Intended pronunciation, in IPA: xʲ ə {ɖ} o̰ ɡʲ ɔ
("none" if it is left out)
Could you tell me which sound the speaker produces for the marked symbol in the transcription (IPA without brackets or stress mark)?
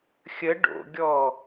ɖ